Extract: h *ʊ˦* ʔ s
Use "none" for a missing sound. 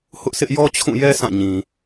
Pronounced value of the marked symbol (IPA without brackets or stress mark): ʊ˦